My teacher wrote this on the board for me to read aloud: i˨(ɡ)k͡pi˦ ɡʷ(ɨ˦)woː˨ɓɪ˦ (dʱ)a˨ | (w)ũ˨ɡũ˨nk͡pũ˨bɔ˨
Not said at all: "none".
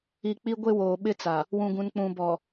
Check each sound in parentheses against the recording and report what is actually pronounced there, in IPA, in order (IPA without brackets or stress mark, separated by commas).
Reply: none, e˦, t͡s, w